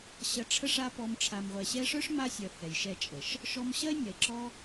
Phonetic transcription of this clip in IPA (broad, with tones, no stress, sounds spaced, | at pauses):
ɕ ɐ˧ ʈ͡ʂʰ ə˦ ʂ a˦ p ɔ˧ m ʈ͡ʂʰ a˨ m ʁʷ ɛ˨ ɕ ɛ˧ ʂ œ˦ ʂ m a˦ sʲ œ˨ h ɛ˨ j ʃ ɛ˧ t͡ʃʼ ə˨ ʃ | ʃ ɔ˧ m ɕ ɐ˦ e̯ nʲ ɐ˨ e̯ ǁ ɔ˦